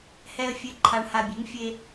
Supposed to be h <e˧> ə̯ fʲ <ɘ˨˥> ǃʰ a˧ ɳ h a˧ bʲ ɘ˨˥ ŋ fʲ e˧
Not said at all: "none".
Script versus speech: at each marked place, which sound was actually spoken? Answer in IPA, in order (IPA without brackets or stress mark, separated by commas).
ɛ˧, ɘ˨˥